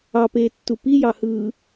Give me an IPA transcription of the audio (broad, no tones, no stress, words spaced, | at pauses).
ɑpeːtːu pijɑhɯː